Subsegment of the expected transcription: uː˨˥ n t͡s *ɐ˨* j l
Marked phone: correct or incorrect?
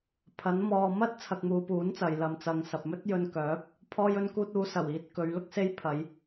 correct